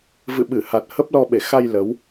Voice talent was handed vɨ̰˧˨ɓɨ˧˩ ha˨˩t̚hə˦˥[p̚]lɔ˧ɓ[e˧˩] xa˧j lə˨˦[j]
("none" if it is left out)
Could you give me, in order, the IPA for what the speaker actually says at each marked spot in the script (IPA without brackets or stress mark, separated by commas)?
p̚, e˧˩, w